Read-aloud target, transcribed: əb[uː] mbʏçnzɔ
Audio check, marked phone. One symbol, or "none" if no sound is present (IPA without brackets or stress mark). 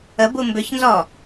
u